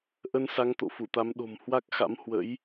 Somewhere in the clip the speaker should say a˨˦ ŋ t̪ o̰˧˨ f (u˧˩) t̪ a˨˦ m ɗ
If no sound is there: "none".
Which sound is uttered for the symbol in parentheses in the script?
u˧˩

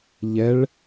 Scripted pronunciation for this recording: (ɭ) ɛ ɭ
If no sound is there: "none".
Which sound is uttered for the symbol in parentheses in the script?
ʎ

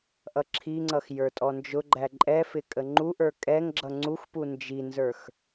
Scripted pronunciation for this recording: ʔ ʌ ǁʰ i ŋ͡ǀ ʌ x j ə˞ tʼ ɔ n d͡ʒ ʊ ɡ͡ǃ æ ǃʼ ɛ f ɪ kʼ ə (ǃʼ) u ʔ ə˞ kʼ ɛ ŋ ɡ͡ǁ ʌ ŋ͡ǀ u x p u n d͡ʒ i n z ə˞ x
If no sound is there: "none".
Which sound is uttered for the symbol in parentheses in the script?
ŋ͡ǃ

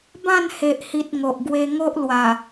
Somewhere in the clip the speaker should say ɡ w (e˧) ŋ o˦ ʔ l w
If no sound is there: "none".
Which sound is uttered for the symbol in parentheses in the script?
e˧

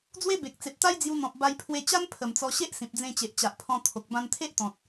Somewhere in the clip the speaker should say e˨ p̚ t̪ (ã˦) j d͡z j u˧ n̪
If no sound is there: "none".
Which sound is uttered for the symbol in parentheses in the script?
a˦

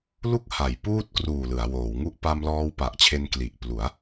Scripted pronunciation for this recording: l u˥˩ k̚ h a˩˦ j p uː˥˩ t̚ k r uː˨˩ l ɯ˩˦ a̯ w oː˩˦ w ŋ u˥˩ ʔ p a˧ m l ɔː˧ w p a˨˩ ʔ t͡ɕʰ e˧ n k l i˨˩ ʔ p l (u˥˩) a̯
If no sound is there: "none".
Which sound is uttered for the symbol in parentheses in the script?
u˩˦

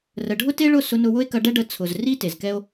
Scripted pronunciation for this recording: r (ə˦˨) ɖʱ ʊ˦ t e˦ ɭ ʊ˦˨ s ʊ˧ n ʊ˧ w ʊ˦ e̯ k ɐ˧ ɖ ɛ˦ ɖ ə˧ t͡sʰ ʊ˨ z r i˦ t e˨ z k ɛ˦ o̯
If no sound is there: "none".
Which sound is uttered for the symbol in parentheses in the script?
ə˨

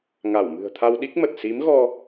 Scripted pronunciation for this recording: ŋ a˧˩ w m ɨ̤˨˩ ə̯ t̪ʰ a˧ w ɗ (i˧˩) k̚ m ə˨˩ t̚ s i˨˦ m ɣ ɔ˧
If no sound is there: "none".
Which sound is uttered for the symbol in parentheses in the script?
i˦˥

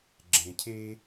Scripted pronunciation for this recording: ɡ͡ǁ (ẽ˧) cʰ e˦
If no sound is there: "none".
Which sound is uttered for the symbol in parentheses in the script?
ẽ˧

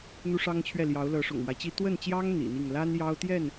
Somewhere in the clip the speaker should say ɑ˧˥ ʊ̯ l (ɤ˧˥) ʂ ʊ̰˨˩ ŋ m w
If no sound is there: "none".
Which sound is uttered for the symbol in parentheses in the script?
ɤ˧˥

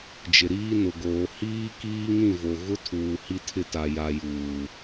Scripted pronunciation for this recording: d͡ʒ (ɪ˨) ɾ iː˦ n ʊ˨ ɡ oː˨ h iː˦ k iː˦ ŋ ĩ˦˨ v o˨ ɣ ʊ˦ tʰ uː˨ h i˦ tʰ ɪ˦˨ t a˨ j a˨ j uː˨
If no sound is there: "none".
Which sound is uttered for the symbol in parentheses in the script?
ɪ˨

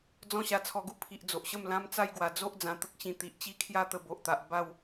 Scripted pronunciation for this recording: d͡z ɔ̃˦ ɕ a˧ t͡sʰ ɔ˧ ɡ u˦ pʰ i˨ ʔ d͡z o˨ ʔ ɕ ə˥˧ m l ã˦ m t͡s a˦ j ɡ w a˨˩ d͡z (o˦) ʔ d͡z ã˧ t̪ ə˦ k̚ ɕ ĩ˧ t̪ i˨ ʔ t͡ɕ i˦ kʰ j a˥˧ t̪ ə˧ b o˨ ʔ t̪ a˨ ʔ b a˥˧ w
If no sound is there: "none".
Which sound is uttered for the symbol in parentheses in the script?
o˦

